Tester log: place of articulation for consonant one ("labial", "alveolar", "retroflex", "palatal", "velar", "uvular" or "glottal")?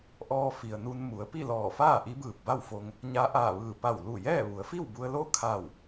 glottal